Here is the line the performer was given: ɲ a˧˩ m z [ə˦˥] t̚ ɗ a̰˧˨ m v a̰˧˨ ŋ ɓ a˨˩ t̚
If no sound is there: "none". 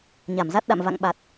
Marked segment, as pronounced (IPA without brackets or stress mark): a˦˥